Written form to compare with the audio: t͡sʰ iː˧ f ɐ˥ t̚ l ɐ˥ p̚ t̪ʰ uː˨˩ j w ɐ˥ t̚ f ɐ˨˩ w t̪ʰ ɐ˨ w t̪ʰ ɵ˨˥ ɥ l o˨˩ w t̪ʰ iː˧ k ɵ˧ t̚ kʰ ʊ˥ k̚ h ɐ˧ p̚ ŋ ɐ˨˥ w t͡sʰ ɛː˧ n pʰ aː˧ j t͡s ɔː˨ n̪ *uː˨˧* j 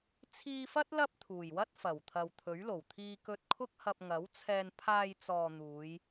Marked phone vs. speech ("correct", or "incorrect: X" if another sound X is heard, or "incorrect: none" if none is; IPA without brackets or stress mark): correct